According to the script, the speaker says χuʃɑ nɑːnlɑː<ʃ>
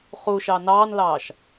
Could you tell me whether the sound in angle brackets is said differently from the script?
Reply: no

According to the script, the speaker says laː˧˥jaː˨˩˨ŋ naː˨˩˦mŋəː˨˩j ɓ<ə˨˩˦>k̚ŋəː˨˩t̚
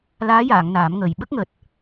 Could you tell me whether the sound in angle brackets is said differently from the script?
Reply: yes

